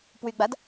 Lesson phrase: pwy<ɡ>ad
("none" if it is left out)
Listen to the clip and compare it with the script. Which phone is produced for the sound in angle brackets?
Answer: ɡ͡b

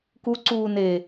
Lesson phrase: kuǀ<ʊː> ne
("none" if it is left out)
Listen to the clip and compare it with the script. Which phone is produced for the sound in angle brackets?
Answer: uː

